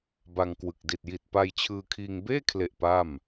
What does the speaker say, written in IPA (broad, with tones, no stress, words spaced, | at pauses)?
ba˧ŋkwɯ˨˩k̚ di˨˩t̚ji˨˩t̚ pa˧jt͡ɕʰɯː˧kʰiː˧ŋ beː˥˩kʰle˨˩ʔ pa˥˩m